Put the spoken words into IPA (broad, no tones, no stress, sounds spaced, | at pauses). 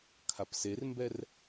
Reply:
kʰ a p s e r m b ɛ r